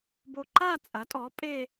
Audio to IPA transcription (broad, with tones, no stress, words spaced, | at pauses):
bo˧ǃa˥˧t͡sʼɐ˩˥tʼɔ˩˥ pʼe˥˧